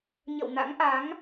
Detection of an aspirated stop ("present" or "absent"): absent